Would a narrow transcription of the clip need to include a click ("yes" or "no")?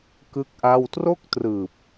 no